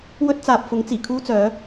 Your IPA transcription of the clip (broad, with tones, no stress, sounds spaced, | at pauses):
w ɵ˥ t̚ t͡s aː˨ p̚ f ʊ˨˥ ŋ t͡s iː˨˩ kʰ uː˥ t͡s œː˨˥